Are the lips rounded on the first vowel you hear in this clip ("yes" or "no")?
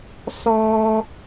yes